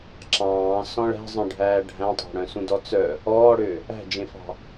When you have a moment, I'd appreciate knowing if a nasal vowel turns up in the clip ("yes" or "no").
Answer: yes